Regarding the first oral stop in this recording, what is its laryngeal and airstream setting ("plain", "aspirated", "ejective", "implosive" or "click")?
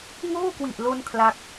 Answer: plain